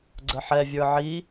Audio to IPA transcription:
ɡ͡ǀ ə ħ ɛ vʲ ə˞ ʕ i

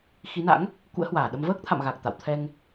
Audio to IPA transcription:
x i˨˦ n a̰˧˥ ŋ | k ṵ˧˥ ə̯ h w aː˧˩ ɗ ə˧ m v əː˦˥ k̚ t̪ʰ a̰˧˨ m ɣ a˨˩ k̚ t̪ a̰˧˨ w t̪ʰ ɛ˧ ŋ

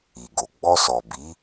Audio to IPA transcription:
i˨ ɡ o˨ ɡ͡b ɔ˧ s ɔ˨ b i˨˦

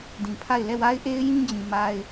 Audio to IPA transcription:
d ĩ˨ pʰ a˦˨ ɪ̯ l ɛ˦˨ w a˦ ɪ̯ ʔ e˦ ɪ̯ j ĩ˦ d͡ʑ ĩ˨ m a˦ ɪ̯

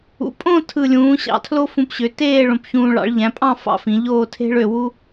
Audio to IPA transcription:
ṵ˩˧ pʼ õ˥˧ tʰ ɯ˧˩ lʲ ũː˩˧ ɕ ɑ̰˩˧ tʰ l o˥ f ũ˧ p ɕ ø˩˧ t eː˥˧ ɭ õ˧ p ç ũː˧ ɭ ɑ̰˩˧ ɭ ʎ æ̃˩˧ pʼ ɑ̃˥˧ f ɑ̰˥˧ f ĩ˩˧ ʎ oː˥˧ tʰ e̤˥ ɭ ø˧ w u˥

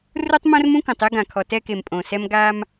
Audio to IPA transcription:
r u˦ tˤ m õ˦ r m ũ˦ k õ˨ tˤ e˦ ɡ ã˨ kʰ ɔ˨ t ɛ˦ k e˨ m pʼ õ˨ s ɛ˦ m ɡ a˦ m

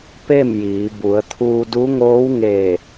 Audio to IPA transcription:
p e˥˨ m j iː˩˧ b u˩˧ ə̯ t̪ʰ uː˧ d u˧˥ ŋ oː˧˥ w ŋ e˧˩

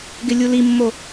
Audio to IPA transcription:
ɡ ɪ lʲ u l i mː o

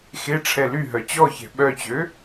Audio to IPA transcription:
x e ʈ͡ʂʰ ɛ l y ɦ œ t͡ɕ ɔ ç ɛ̤ ɓ œ t͡ɕ ø

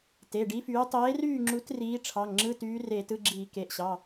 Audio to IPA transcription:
t e˩˧˩ ɖ i˨˥ f yː˨˥ tˤ eː˨˥ r yː˥˨ ŋ͡ǁ u˨˥ t r iː˨˥ ʈ͡ʂʰ ɑ˩˧˩ ŋ ŋ͡ǁ ɯ˧˥˧ t yː˨˥ r eː˧˩˧ t ɯ˧˥˧ ɡ͡ǁ iː˧˩˧ k e˩˧˩ ʔ ɕ ɑ˩˧˩

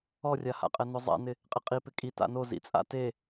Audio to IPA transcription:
ɔ rʲ a h a̰ qʼ ɛ n ʊ zˤ a̰ n ɪ | qʼ ɪ qʼ i p ɪ kʼ i t a̰ n o z ḭ t͡sʼ a̰ t e

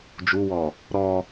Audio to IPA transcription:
d͡ʒ u w ɔ | ɾ ɔ

